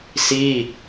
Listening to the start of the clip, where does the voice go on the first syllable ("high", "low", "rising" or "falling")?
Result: falling